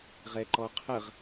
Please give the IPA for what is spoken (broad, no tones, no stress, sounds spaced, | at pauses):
ʁ ɛ ǃ ɔ qʰ ə ʁ